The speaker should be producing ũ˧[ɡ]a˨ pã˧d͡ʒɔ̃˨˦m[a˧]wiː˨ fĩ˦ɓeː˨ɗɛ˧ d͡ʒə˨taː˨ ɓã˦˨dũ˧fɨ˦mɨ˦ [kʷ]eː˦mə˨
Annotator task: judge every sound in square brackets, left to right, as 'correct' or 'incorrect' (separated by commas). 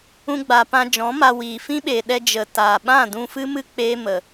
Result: incorrect, correct, incorrect